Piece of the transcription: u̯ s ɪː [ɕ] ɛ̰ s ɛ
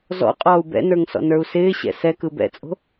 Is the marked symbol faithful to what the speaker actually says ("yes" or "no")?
yes